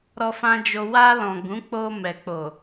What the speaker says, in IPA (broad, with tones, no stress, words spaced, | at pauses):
ɾɔ˧fã˧d͡ʒo˧ wa˧lɔ̃˨ ɡũ˨˦k͡po˧ mɛ˨k͡po˨